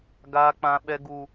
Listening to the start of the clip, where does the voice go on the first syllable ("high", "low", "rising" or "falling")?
high